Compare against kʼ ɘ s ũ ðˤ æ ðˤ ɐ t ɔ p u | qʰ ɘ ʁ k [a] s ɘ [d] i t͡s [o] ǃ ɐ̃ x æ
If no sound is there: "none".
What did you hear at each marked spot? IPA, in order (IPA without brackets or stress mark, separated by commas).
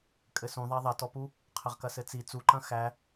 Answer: ɐ, t͡s, u